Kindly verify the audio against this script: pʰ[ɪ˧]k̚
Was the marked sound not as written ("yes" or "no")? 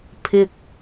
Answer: no